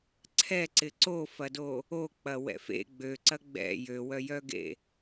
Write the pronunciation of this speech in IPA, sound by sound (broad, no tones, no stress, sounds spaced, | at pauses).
ǀʰ ɛ ǀ ɪ ǀ o f ɐ d o | o k͡p ɐ w ɛ̰ f ḛ ɡ͡b ø ǀ ɐ ɡ͡b ɛ̰ j ø w œ j œ ɡ ḛ